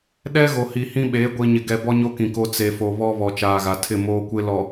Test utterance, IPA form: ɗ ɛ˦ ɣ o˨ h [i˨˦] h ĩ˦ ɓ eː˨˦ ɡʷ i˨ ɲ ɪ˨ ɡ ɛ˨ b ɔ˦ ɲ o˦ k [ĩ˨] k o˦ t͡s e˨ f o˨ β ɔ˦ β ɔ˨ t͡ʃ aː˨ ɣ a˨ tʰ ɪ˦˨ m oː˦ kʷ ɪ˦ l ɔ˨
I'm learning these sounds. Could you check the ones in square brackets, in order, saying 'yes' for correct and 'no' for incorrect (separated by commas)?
no, yes